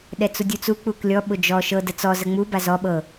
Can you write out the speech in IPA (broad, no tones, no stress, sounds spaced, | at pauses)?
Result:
ɗ ɛ t͡s u dʲ u t͡s u k͡p u k lʲ ɔ ɓ ʊ d͡ʒ ɔ ʃ ɤ d ə t͡s ɔ z ə ŋ͡m u b a z ɔ ɓ ɤ